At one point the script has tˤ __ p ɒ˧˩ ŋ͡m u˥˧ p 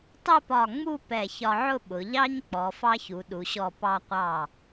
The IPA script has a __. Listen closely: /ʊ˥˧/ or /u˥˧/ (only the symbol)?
ʊ˥˧